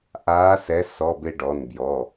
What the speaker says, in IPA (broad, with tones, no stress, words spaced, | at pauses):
ʔaː˨˥sɛ˨˥ sɔ˩˧˩ bɪ˧ɖɔ˩˧˩nbjɔ˩˧˩